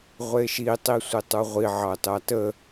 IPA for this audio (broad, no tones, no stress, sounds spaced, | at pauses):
ʁʷ e ʃ i tˤ i sʷ i tˤ u ʁʷ i ʕ ɑ t ɑ t ə